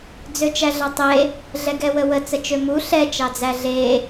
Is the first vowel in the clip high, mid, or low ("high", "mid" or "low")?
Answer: mid